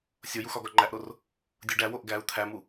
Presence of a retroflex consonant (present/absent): present